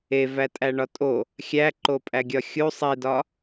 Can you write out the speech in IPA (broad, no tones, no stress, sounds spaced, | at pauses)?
e v æ tʼ æ ɳ ɒ tʼ o | xʲ æ ǃ o pʼ æ ɡʲ ɒ xʲ u sˤ i d ɒ